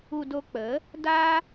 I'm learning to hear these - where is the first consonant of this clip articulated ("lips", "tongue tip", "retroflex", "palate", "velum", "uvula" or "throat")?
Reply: tongue tip